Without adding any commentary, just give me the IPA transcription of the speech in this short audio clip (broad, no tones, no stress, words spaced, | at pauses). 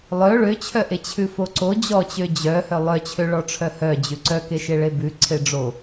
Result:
lˠœ ɭøt͡ɕʰœʔe t͡ɕʰʉfoǀo d͡ʑɔt͡ɕø d͡ʑœhœ lˠœt͡ɕʰø ɭɔʈ͡ʂʰœhœ d͡ʑʉǀœ keʃeɭebʉ ǀʰeɖ͡ʐo